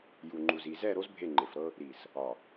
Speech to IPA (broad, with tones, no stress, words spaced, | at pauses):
ju˨ŋ͡ǃu˨zi˨ zɛ˦˨ ɾo˦z bʱe˦˨ŋ͡ǃe˨fɾɤ˦ | ɾi˨s | ɒ˨